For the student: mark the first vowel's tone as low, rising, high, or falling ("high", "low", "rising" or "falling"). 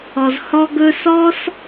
low